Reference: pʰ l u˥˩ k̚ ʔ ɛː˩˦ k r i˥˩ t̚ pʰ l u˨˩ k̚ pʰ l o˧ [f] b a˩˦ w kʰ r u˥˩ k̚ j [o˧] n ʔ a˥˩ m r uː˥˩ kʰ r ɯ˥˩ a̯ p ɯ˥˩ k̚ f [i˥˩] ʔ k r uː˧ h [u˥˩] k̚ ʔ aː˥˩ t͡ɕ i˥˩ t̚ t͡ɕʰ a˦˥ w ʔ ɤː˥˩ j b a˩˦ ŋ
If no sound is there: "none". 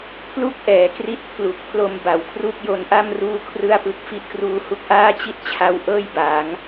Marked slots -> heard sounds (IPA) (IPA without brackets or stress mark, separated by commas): m, o˧, i˦˥, u˦˥